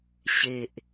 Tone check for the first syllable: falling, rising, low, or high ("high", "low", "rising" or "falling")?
low